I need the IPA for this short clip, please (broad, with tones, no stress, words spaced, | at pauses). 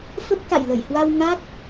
fə˦˥p̚ka̰˧˨jlə˧˩jhwa˧w ŋa˦˥k̚